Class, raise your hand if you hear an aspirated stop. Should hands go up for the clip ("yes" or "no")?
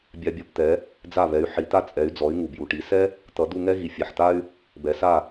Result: no